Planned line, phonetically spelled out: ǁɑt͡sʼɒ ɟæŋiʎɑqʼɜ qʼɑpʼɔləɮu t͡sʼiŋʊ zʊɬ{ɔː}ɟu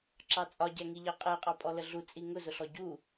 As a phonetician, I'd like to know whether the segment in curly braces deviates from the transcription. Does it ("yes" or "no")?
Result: yes